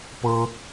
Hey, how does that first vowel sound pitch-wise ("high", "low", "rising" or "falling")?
high